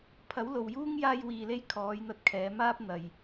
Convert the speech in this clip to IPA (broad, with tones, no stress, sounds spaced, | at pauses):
pʰ ɐ˨˥ w l o˨ w j uː˥ ŋ j aː˧ j w iː˨ l e˧ j kʰ ɔː˨˧ j n̪ ɐ˧ t̚ kʰ ɛː˨˧ m aː˥ p̚ n̪ ɐ˨ j